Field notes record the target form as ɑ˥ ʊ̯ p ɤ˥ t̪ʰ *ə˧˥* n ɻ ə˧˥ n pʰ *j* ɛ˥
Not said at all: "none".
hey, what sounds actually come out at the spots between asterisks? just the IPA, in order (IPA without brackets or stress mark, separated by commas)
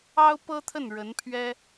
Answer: ə˥˩, ɥ